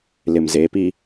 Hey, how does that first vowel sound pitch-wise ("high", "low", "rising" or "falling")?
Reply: low